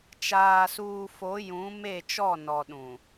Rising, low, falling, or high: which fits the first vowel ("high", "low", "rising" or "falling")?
low